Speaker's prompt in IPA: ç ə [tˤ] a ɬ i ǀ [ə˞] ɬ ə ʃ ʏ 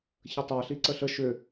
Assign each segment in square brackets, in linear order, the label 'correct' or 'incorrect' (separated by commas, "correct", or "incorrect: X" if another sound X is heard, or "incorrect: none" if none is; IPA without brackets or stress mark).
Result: correct, incorrect: ə